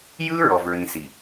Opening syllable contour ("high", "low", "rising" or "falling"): high